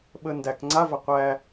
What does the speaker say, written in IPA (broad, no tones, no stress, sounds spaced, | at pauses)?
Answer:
ɓ ə n d æ k ŋ͡ǀ a v ɐ qʷ æ